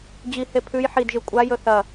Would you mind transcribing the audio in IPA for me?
d͡ʑihe pʰʉj ħidʒɨ kʷʼajɵ θɐ

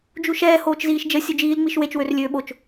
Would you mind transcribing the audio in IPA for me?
d͡ʒuʃɛː hoːt͡ʃziːʃd͡ʒə sʲud͡ʒiːl ŋ͡miʃwet͡ʃ wørlʲøːɓot͡ʃ

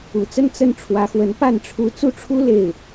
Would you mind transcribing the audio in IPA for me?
ṵ˨˩t͡sə˥˧n t͡sə˥˩n ʈ͡ʂʰwä˧˥xwə˧˥n pa˥˩nʈ͡ʂʰu˧˥ t͡su˥˩ʈ͡ʂʰu˥ le˥˩ɪ̯

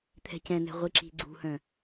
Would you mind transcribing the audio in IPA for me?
t̪ʰɛ̤cɛ̃n̪ɛ̤ ʁʷiǁi̤ɡ͡ǀṳhœ̃

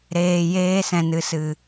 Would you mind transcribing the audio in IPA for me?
ɾeː˨jeː˧ sɛ̃˨nɨ˨ sɨ˨

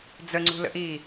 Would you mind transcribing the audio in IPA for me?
d͡zəŋ͡ǀṳlə̰ʔiː

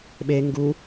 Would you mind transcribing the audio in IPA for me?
ɓe ŋɡu

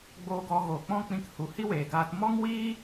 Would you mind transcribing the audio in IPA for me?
ɡ͡boː˧ɡɔ˧ ɣoː˨k͡pɔ̃˦k͡pĩ˧k hu˨hi˦weː˨ ɡaː˧t mɔ˦ŋwiː˦

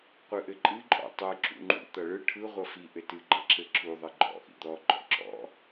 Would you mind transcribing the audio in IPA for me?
qʷɯʔɘǃʼɨ ǃʼɔ̰ tˤɯ ǁṵŋ͡ǃṵ t̪ʌɭɯ ʈʰɯ ʁʷʌfi ʔɘtɨ ɡ͡ǃʌǁɘǁu ðˤɘɡ͡ǃɔ̰ ʔḭd̪ɔ ɡ͡ǃɔ̰ǁɔ̰

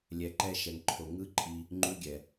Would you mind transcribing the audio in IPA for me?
lʲɛ˧ǃɛ˦ ʃɛ˨ŋǃʰo˨ ŋɯ˦ǃʼi˧ | ŋ͡ǃu˦ɡʲɛ˨

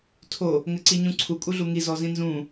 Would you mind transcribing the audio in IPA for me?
tʰo | ŋɘǀiɲũǀʰu kʼuɮuŋi zɔzĩnzũ

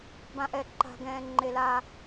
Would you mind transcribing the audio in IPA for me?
bã˦ʔɛ˩˧ ǃa̤˦ɡɛ̃ː˦ ŋ͡ǃe˦la˦

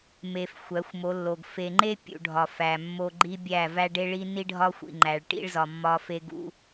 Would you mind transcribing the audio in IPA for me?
me˨f xʷæ˨˦xʷmo˨˦lːo˨ɡ fe˨ŋ͡ǃe˦ pʲṵ˨ɖʱɒ˨ fæ˨mːo˦ ɡ͡ǃi˦bʲæ˦˨ væ˦ɖe˦ɭi˦ ni˦ɖʱɒ˦xʷḭ˨ŋ͡ǃæ˨ɭ ʈḭ˦ɭzɒ˨ mːɒ˦fe˦ɡṵ˦

